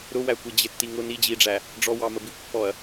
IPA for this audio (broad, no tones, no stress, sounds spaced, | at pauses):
ɾ ʊ w æ kʷ i d͡ʑ ɪ tː i ŋ ʊ n i d͡ʑ i ɖ͡ʐ æ | ɖ͡ʐ ɔ w ɑ m ə b i kʷ pː ɔ ɐ̯